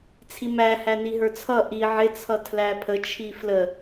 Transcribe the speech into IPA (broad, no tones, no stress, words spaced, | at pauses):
t͡sʰimæhæ niɦə˞t͡sʰʌ ʔi ʕɪt͡sʰʌ tʰlæpʰət͡ʃʰi flə